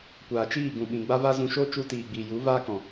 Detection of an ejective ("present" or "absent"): absent